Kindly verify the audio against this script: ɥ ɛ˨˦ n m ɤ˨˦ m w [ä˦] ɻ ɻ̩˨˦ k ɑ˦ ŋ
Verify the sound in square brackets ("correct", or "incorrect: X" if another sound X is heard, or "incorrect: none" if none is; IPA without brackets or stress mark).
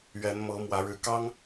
incorrect: ä˨˦